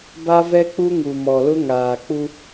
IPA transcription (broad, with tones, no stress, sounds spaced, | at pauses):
b a˦ v ɛ˦ k͡p u˦ ŋ u˨ m ɔ˨ l ʊ˦ ŋ aː˨ k͡p u˦